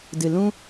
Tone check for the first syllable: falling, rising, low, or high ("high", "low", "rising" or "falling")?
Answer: low